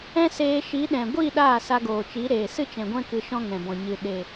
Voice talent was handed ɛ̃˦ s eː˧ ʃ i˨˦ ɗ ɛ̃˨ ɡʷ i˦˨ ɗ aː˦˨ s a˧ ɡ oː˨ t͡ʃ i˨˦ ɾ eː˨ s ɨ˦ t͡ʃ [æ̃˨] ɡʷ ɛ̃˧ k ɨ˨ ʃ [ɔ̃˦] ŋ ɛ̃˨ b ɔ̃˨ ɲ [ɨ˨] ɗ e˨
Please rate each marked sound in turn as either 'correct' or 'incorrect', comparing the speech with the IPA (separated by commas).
incorrect, correct, correct